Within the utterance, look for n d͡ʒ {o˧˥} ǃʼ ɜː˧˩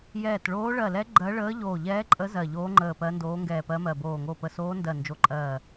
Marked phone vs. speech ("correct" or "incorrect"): incorrect